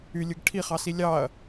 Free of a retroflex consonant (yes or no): no